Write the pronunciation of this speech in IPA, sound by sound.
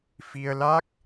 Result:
f i˧ ə̯ l a˦˥ k̚

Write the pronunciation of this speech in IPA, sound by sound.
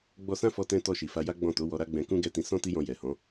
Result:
ɡ͡b ɔ˧ s ã˦ f ɔ˧ t ɛ̃˧ t ɔ˧ ʃ i˨ f a˧ j a˦ ɡ͡b ɔ̃˦˨ t o˨˦ w ɔ˧ ɾ a˦ ɡ͡b ɛ̃˧ k ũ˦ ɡ ɛ˦˨ t ĩ˨˦ s ɔ̃˦ t i˦ j ɔ̃˧ j ɛ˨ h ɔ̃˨˦

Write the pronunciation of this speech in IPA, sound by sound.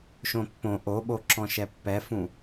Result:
ʃ õ pː õ ʔ o ɓ o ǁ ɔ̃ ʃ ɛ pː ɛ f ũ

